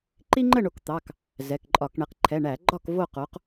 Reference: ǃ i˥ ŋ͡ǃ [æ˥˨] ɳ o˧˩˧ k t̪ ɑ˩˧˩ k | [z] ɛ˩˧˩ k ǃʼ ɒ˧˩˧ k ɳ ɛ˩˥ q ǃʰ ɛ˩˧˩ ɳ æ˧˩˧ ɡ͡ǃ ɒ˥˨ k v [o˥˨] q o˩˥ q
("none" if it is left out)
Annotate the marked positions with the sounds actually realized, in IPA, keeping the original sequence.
ə˥˨, z, o˥˨

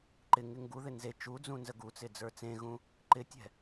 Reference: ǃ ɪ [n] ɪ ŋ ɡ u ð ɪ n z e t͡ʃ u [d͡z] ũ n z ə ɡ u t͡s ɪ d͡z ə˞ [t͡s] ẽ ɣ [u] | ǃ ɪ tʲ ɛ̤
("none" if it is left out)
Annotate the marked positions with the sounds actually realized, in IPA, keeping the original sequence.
ŋ, d͡z, t͡s, ũ

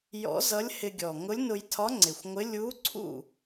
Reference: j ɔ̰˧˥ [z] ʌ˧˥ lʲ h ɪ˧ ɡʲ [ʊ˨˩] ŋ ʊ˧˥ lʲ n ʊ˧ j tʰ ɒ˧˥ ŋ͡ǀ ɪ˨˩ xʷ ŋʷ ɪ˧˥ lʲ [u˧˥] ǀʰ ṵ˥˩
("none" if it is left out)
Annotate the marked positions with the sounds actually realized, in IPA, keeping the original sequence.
z, ɔ˨˩, u˧˥

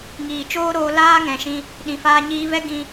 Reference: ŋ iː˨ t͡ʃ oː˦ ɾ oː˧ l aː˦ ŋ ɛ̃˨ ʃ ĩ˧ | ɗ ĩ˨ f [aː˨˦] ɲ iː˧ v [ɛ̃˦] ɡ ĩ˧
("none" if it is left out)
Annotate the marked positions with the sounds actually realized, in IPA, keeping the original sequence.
aː˧, ɛ˦

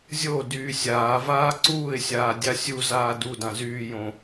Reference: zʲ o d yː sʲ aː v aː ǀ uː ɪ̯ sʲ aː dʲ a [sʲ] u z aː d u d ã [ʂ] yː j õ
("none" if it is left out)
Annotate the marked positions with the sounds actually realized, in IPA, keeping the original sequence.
sʲ, z

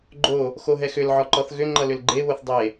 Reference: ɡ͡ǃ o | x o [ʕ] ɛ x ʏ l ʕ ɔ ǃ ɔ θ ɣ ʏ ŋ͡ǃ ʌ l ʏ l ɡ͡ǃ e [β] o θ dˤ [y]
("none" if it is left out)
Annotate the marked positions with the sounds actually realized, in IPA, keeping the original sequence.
ɦ, β, e

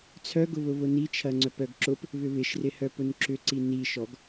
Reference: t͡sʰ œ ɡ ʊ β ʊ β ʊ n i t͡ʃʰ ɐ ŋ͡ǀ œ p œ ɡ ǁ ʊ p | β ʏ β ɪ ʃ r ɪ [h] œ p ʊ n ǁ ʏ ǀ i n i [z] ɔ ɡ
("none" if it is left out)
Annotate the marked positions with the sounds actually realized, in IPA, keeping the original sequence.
h, ʃ

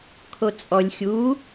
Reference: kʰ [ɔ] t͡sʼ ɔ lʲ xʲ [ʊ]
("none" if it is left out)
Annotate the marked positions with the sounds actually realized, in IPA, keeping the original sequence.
o, u

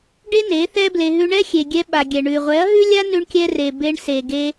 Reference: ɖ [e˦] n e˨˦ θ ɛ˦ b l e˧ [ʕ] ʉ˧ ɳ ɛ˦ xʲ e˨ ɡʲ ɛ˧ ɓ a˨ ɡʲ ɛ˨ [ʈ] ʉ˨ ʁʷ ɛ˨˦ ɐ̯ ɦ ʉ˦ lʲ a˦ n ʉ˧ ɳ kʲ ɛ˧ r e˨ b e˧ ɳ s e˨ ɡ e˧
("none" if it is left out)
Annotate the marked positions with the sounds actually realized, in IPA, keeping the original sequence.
e˦, ɦ, ɳ

